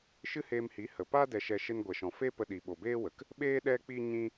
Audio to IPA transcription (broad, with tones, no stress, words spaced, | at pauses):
ʃɨ˦heː˧mhi˨˦ hə˨ pa˦ dɛ˧ʃɛ˧ ʃe˦nɡʷɛ˨ʃɔ̃˨ fe˦pə˧ɗi˨ ɓo˨beː˦wə˨k | ɓeː˦ ɗɛ˦k͡pi˦ ɲĩ˦